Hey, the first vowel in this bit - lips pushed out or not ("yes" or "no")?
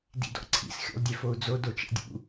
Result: no